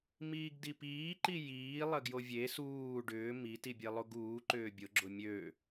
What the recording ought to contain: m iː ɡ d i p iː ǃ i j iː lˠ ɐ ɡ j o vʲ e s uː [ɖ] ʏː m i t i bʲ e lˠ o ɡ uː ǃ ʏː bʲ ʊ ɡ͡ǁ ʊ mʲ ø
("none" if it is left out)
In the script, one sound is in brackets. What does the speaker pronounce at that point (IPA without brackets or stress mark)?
ɖ